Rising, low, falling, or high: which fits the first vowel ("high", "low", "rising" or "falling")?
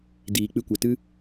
low